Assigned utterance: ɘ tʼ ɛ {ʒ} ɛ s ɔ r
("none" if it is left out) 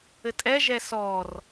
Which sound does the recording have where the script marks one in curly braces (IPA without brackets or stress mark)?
ʒ